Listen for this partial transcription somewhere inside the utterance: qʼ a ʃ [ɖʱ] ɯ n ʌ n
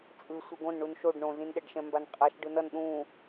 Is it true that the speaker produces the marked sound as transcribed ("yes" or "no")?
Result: no